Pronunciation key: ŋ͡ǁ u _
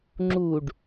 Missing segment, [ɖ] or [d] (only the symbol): ɖ